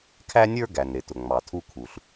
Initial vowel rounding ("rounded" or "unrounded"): unrounded